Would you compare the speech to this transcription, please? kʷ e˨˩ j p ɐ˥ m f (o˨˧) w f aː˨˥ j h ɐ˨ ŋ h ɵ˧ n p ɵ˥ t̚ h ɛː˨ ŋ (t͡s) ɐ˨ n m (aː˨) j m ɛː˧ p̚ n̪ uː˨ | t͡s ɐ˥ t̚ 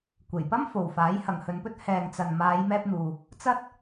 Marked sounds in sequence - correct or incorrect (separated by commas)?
incorrect, correct, incorrect